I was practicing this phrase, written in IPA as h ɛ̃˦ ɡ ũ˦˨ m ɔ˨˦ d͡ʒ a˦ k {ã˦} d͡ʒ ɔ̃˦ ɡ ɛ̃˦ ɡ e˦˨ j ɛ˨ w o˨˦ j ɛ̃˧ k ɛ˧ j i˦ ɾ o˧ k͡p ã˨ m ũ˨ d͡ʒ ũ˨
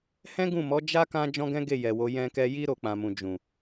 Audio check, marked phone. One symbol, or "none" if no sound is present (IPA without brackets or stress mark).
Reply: ã˦